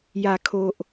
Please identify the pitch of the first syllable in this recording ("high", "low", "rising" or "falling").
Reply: low